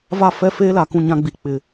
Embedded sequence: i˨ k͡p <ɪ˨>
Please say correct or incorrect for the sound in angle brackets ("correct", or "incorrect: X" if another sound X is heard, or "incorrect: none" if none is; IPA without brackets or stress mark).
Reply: correct